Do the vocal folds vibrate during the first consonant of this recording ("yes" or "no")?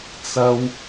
no